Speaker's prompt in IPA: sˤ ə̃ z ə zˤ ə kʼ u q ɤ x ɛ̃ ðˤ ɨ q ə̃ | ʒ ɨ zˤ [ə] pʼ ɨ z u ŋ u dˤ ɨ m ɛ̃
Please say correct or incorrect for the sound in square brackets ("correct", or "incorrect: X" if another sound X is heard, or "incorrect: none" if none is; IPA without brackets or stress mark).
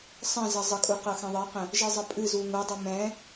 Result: correct